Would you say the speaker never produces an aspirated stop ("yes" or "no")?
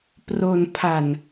no